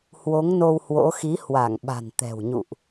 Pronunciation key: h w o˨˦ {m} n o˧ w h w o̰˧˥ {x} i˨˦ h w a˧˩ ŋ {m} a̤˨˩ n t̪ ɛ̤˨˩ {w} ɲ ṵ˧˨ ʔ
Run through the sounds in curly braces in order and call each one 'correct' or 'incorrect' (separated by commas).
incorrect, correct, incorrect, correct